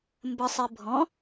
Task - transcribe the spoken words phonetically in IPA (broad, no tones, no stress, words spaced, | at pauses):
mbə sˤibʱɔ̃